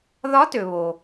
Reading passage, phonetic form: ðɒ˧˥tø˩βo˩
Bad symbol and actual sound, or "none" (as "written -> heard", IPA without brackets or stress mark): none